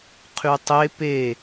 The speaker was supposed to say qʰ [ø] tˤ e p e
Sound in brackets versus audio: incorrect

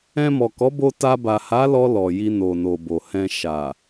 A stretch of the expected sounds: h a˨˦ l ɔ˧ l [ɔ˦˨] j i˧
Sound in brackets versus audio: incorrect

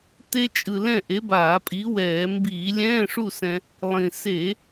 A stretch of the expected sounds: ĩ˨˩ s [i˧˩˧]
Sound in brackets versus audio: incorrect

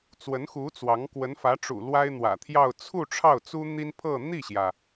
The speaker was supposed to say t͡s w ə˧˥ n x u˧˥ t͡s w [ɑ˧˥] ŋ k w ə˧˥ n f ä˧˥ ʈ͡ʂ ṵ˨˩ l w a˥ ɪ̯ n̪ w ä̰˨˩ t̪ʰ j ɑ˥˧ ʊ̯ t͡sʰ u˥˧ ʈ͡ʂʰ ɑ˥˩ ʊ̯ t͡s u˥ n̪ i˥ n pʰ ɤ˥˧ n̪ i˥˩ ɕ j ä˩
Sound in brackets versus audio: correct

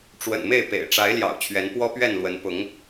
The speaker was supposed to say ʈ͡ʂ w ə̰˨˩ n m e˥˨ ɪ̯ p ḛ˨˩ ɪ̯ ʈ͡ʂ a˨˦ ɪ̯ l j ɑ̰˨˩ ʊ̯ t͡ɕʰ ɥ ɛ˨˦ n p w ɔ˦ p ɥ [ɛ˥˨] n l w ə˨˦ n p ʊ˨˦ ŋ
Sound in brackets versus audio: correct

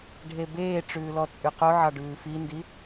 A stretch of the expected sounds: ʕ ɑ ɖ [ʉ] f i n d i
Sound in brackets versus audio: incorrect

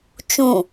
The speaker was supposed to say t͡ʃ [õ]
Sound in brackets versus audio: incorrect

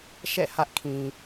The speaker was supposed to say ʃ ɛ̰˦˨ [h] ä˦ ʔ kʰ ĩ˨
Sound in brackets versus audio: correct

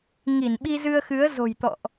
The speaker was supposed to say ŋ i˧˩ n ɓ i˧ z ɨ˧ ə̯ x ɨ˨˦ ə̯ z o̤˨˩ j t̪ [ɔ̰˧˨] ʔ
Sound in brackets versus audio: correct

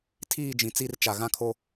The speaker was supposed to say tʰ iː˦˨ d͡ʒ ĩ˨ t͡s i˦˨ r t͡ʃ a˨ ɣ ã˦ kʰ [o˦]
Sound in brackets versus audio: correct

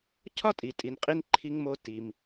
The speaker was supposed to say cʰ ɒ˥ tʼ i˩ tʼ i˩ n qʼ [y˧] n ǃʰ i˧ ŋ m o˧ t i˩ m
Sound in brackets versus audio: incorrect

